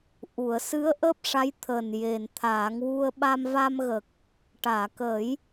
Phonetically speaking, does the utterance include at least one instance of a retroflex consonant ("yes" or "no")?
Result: yes